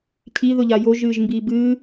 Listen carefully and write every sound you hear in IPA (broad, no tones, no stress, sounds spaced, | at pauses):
cʰ i ð ʊ ʎ a j o ʒ ɨː ʒ m b i b ɨː